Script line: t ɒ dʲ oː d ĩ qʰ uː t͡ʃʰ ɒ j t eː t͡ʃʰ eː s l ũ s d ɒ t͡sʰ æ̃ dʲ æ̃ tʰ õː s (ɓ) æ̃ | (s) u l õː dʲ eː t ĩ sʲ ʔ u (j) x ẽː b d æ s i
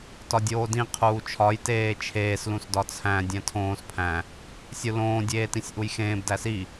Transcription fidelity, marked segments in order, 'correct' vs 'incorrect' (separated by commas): incorrect, incorrect, correct